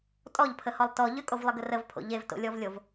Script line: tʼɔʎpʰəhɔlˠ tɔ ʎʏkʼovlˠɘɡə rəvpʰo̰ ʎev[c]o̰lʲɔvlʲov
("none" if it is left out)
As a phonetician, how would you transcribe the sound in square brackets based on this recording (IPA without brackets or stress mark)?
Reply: t